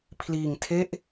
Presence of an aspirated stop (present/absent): present